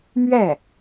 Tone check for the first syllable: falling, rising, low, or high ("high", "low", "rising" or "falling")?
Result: falling